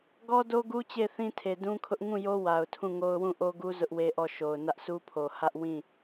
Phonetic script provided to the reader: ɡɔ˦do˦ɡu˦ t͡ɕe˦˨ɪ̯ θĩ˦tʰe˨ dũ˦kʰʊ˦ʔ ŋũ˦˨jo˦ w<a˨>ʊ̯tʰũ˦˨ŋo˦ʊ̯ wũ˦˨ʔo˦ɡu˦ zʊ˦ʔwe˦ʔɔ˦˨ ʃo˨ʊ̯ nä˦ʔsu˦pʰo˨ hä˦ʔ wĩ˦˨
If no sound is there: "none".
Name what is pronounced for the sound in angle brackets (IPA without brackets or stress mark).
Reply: a˨